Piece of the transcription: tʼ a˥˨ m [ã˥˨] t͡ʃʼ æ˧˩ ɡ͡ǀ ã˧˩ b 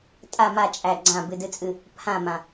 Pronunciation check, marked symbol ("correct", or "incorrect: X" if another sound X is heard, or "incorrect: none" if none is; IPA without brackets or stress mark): incorrect: a˥˨